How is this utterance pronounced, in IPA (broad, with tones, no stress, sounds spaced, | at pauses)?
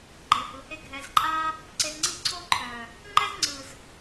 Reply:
ɡ͡ǃ e˨ h ɯ˨ h e˦ ɡʱ ɛ˨ z ǃʼ a˦ | ǀ e˧ z ŋ͡ǀ i˦ ǀʰ o˦ ǃʰ œ˨ | ŋ͡ǃ ɛ˦ z ŋ͡ǀ ɯ˨ z